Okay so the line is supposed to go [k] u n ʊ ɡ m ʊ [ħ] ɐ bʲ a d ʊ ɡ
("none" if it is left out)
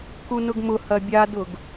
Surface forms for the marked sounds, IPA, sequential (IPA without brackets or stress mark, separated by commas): k, h